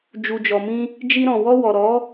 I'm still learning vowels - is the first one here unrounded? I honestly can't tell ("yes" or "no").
no